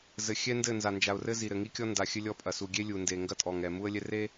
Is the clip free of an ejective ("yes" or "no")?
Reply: no